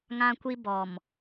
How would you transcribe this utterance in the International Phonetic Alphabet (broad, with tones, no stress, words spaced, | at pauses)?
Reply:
ŋã˦kʷi˦ bɔ˨m